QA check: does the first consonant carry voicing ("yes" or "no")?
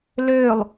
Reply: yes